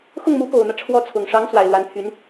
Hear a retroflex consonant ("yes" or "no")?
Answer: yes